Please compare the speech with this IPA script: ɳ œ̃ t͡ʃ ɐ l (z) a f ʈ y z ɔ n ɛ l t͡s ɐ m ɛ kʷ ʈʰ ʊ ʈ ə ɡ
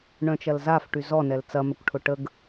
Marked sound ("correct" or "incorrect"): correct